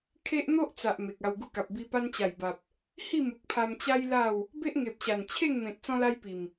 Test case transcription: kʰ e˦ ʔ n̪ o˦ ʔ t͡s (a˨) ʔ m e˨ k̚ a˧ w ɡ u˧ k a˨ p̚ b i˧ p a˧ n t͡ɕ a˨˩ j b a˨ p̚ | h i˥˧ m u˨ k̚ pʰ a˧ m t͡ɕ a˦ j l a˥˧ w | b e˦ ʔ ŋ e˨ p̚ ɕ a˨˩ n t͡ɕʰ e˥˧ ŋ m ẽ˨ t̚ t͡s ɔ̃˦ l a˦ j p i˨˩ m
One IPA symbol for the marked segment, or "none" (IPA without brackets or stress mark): a˨